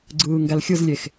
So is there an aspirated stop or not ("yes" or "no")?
no